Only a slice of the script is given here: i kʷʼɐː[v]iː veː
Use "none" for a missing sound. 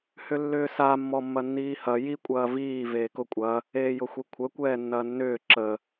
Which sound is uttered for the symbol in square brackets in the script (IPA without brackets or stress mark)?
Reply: v